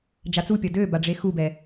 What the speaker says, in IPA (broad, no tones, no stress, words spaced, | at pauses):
d͡ʒat͡supʲɔ dø baɖ͡ʐexubɛ